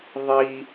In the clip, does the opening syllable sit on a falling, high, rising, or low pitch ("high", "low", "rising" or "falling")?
high